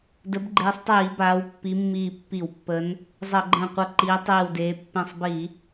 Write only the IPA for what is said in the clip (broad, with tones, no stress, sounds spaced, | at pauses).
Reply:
d ə˨˦ b ɡ͡ǃ eː˨˦ sˤ tˤ iː˧˩˧ b aː˨˦ w pː i˨˦ mː iː˧˩ pː i˧˩˧ w pː ə˨˦ n | zˤ ʌ˧˩˧ ɡ͡ǃ ə̃ː˧˩ qʷ ʌ˧˩ ǃ iː˨˦ tˤ iː˧˩ w d eː˨˦ pː ẽ˧˩ sˤ b i˧˩˧